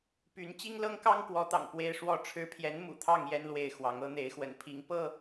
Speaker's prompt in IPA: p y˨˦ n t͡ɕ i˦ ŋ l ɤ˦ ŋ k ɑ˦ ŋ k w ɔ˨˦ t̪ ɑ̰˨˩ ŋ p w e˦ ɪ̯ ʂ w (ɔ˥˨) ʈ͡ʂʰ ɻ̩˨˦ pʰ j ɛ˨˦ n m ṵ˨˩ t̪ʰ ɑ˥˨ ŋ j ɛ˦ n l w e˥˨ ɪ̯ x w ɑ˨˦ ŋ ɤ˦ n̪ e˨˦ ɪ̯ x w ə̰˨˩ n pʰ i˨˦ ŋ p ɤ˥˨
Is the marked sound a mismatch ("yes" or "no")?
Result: no